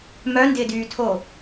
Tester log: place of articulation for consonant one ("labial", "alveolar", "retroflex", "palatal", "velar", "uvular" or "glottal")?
labial